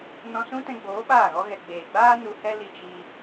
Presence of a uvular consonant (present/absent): absent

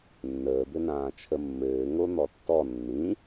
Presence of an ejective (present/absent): absent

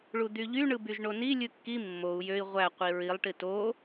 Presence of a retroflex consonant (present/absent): present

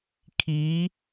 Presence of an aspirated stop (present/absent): present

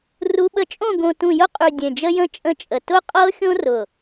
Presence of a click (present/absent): absent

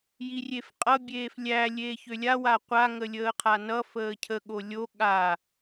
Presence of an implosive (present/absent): present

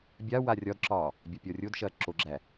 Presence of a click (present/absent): present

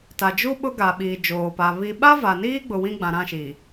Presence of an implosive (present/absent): present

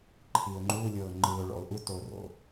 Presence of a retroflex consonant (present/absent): present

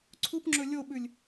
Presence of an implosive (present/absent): present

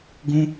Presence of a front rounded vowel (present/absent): absent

